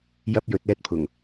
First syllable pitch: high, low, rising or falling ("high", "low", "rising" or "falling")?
high